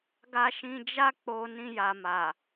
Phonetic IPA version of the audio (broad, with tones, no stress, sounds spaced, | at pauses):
ɡ a˧ ʃ ĩ˧ d͡ʒ a˦ k͡p o˧ n ĩ˧ j a˨ m a˨